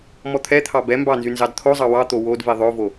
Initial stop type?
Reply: aspirated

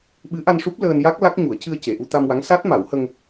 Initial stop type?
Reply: implosive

